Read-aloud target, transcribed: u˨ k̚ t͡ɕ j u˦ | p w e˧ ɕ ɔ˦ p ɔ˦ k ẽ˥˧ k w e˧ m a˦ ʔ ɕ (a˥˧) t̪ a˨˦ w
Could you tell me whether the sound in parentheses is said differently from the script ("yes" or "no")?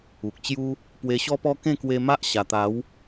yes